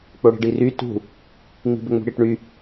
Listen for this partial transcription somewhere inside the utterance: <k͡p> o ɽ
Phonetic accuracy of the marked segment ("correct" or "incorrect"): correct